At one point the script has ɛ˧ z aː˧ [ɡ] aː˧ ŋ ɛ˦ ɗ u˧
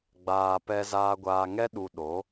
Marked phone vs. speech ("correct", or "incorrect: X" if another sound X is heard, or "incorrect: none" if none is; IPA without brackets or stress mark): incorrect: ɡʷ